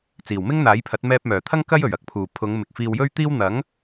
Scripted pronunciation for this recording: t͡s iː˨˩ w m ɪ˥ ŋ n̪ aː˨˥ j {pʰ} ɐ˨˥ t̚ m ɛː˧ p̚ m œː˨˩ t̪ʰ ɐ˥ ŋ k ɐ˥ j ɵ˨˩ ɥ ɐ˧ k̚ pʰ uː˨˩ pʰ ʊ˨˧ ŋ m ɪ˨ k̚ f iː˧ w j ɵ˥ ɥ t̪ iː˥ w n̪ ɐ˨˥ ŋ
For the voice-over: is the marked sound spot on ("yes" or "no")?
yes